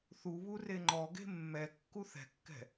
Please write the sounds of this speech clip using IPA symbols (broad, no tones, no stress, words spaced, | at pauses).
θuβu reŋ͡ǃɔɡe̤ mːɛ kːuθɛ̤kːɛ̤